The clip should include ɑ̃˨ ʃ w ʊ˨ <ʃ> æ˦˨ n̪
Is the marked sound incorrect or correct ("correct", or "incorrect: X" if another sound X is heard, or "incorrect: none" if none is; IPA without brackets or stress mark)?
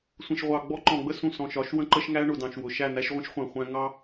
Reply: correct